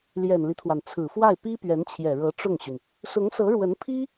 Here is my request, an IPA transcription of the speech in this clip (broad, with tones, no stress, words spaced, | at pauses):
ljɛ˨˩nli˦t̪ʰwa˩n t͡sʰɹ̩˨˩fwa˥˩ɪ̯ pi˥pɥɛ˧˥nt͡ɕʰjɛ˨˩ ɻɤ˧˥ʈ͡ʂʊ˥˩ŋɕy˩n | sʊ˧˥ŋsɤ˧˥ɻwə˧˥n pʰi˥